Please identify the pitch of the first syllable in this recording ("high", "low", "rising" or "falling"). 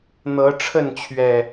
rising